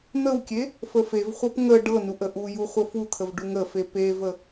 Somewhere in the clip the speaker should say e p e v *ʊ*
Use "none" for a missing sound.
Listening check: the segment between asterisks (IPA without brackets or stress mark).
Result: ə